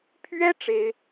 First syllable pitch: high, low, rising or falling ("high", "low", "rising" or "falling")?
high